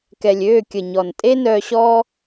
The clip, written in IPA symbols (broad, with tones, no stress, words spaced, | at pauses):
kɛ˨lʲøː˦˨kʲə˨ɲɔ˨n tʼe˦nœː˧ɕɔː˦